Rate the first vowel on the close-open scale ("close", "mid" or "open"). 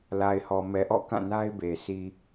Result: open